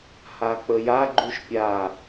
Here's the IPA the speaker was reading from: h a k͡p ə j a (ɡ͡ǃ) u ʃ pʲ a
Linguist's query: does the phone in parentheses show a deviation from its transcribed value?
no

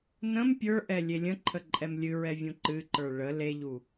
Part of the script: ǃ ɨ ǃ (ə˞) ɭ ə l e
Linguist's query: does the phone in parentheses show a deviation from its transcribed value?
no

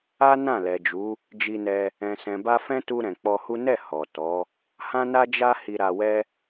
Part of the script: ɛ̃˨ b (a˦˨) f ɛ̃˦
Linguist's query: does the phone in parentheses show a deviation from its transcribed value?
yes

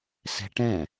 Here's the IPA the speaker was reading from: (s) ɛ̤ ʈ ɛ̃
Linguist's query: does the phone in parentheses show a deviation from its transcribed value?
no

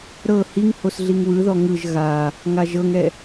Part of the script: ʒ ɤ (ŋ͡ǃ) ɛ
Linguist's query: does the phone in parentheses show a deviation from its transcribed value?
yes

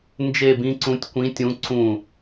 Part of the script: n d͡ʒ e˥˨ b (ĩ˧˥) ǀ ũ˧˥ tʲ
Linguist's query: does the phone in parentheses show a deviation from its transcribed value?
no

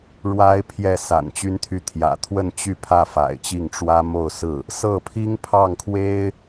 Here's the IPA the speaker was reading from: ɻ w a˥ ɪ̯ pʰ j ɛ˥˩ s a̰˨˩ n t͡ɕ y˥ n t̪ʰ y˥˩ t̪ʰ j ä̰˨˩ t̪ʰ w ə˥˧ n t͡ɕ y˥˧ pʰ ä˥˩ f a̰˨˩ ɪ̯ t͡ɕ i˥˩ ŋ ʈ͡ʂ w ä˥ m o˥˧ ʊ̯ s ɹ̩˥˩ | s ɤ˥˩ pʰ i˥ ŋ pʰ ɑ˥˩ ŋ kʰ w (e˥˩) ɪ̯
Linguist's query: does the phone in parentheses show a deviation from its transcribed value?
yes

